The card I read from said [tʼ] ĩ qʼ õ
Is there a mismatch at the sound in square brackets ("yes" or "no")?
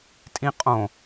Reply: no